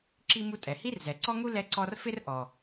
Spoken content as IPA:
ǁ i˥ m u˥ tʼ ɛ˩ h i˥ r z ɛ˩ ǀ ɔ˥ ŋ u˥ l ɛ˥ ǀ ɔ˥ r f ɪ˥ r ʔ ɔ˩

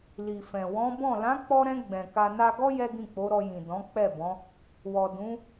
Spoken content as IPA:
l i˨ f ɛ̃˨ w ɔ̃˨˦ b ɔ̃˦˨ l ã˨˦ k͡p ɔ˧ ɾ ɛ̃˧ ɡ͡b ɛ̃˨ k a˧ n a˧ ɡ ɔ˦ j ɛ˦ ɡ ĩ˦˨ k͡p o˨˦ ɾ ɔ˧ j ĩ˨ d ɔ̃˨˦ k͡p ɛ˦˨ b ɔ̃˨˦ | w ɔ˨ d ũ˨˦

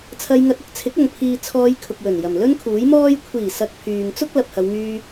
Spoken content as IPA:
t͡sʰ ɐ˧ j ŋ ɐ˧ t̚ ɐ˧ k̚ t͡sʰ ɪ˨˥ k̚ ɐ˨ ŋ pʰ iː˨ t͡sʰ ɔː˨˧ j kʰ ʊ˨ k̚ w ɵ˨˩ n j ɐ˨˩ m l ɵ˥ n kʰ uː˨˥ j m ɔː˥ j kʷʰ iː˨˩ s ɐ˨ k̚ pʰ yː˨ ŋ t͡s ʊ˥ k̚ l ɐ˨ p̚ h ɐ˨˧ w ŋ yː˧

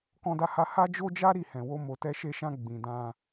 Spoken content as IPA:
k ɔ̃˧ d a˧ h a˧ h a˦ d͡ʒ o˦ d͡ʒ a˦ ɾ i˦˨ h ɛ̃˨ w o˧ m o˨ t ɛ˧ ʃ e˧ ʃ ã˧ ɡ͡b ĩ˨ d ã˧

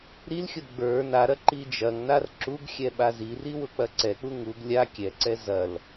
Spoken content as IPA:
ɾ i l xʲ ʊ ɡ͡b ə˞ n a ɾ ɐ ǃ i d͡ʒ ɐ ŋ n a r ǁ u ɡ xʲ ɛ ɓ a z i r i w ʊ k͡p ɐ ǀ ɛ k͡p u ŋ u ɡ lʲ a kʲ ɛ ǀ ɛ z ɐ l

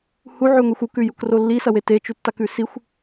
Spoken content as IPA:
h u ʕ ʉ ŋʷ i xʷ u k ʉ j u k r o lː i s ɐ w e t e t͡ʃ u tː a k ʉ s i xʷ

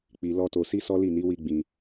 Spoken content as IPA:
k͡p i˧ l ɔ˦ t o˧ s i˦ s ɔ˦ l i˦˨ n i˨˦ w i˦ ɡ͡b ĩ˧

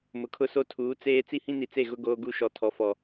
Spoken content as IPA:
m ʊ˨ kʰ ʊ˦ s o˦ tʰ uː˨˦ t͡s eː˦ t͡s i˦ h ĩ˦ n i˨ t͡s e˦˨ ɣ ʊ˦ ɡ oː˦ ɡ u˦ ʃ ɔ˨ tʰ ɔ˨ f ɔ˨

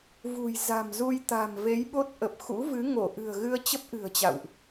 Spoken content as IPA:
v ṳ˨˩ j z a̤˨˩ m z u˧ j t̪ a̤˨˩ m v e˨˦ j ɓ o˦˥ t̚ ʔ ə˨˩ p̚ x ṵ˧˥ v ɨ˨˦ ŋ o˧˩ ʔ ɨ̤˨˩ ə̯ ɣ ɨ˧ ə̯ t͡ɕ ə˦˥ p̚ ʔ ɨ̤˨˩ ə̯ t͡ɕ a̰˧˨ w ʔ

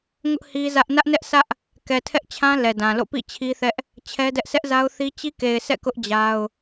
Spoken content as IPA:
ŋ ʊ˦ ʔ h i˦ z ä˦ ʔ n ä˦ ʔ n ɛ˦ ʔ s ä˦ ʔ | k ɛ˨ tʰ ɛ˦ ʔ t͡ɕʰ ã˦ l ɛ˨ d ã˨ l o̰˦˨ p ḭ˦˨ t͡ɕʰ i˦ θ ɛ˦ ʔ | t͡ɕʰ ɛ˦ d ɛ˦ ʔ s ɛ˦ ʔ z a˦ ʊ̯ θ i˦ t͡ɕ i˦ k e˨ ɪ̯ sʰ ɛ̰˦˨ k ʊ˦ ʔ d͡ʑ a˦ ʊ̯

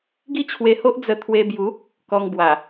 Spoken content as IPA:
ɡ i˥˧ t͡ɕʰ w e˧ h o˦ ʔ d͡z ə˧ t̪ʰ w e˧ b j u˨˦ | k ɔ˧ ŋ b w a˨˩

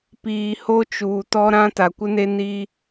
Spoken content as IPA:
p iː˨ h o˦ t͡ʃ uː˨ t ɔ˦ ɾ ã˦ t a˨ kʷ ɪ˦ n e˦ n i˦

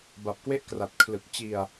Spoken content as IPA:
b a˨˩ p̚ k w e˥˩ ʔ k r a˨˩ t̚ kʰ l ɯ˨˩ k̚ t͡ɕ i˧ a̯

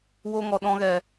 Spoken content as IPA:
w o˧ ŋ ɔ˨ ɗ ɔ̃˧ ɣ ɛ˨

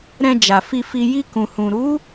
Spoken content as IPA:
ɾ ɛ̃˧ d͡ʒ a˨ f i˧ f i˧ j i˧ k ũ˨ h ũ˨ ɾ u˨˦

